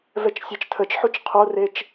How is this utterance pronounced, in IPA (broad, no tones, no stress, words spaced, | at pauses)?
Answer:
vɛt͡ʃsʲɛt͡ʃtʰət͡ʃħut͡ʃ qʰoret͡ʃ